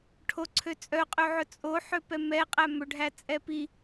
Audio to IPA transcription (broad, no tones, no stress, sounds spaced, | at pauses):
ʈʰ o ǀʰ ø t͡sʼ œ qʼ ø ʕ ɵ t͡sʼ o ħ ø p ɛ m ɛ qʼ æ m ɵ ɖʱ æ t͡sʼ ɛ p i